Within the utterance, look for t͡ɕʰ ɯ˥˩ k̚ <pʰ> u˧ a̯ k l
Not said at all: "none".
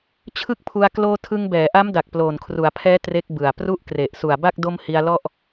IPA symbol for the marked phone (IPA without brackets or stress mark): pʰ